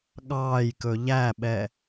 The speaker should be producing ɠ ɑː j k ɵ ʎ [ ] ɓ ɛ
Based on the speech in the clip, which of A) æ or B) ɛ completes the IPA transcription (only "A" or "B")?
A